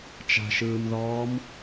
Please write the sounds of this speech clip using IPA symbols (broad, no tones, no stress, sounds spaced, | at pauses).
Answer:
t͡ʃ a̤ ʃ ɯː m ð ɔː m